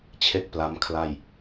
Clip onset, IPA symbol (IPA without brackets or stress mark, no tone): t͡ɕʰ